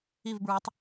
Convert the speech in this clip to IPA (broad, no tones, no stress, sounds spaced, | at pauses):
i v b ɹ e tˤ